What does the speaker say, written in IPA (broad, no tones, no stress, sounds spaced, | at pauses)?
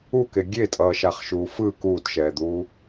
u k e ɡʲ e tʼ ʌː ʃ a χ ʃ uː f ɯ k uː t ʃ ɛː d̪ uː